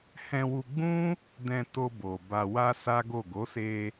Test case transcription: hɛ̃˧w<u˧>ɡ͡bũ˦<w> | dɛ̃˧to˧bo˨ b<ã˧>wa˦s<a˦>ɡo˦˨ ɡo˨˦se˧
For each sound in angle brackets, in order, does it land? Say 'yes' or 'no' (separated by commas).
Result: yes, no, no, yes